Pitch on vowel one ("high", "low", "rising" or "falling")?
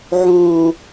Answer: high